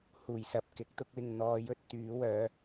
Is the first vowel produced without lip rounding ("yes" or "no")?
no